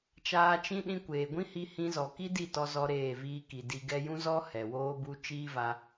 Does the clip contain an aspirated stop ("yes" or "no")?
no